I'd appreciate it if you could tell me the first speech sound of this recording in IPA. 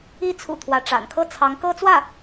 i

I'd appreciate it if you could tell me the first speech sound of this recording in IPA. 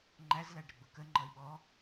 ŋ͡ǃ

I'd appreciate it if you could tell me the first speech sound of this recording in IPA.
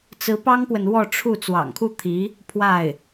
t͡s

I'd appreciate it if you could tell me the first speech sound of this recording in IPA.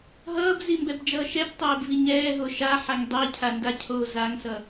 ɦ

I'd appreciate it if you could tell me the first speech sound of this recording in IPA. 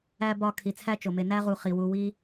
æ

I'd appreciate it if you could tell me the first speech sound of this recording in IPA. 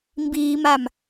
m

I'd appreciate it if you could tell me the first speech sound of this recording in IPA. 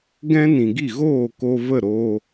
ɡ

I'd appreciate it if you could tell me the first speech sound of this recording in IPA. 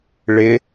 ɭ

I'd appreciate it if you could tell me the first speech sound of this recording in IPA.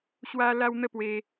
ɕ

